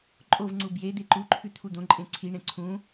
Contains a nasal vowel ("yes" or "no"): yes